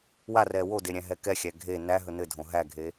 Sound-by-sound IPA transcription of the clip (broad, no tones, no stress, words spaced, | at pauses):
warɛ wode ɾʲæ̃ɦɛkɛxʲæ ɡʱe næɦɵ nɘdʱõ ɦæɡʱe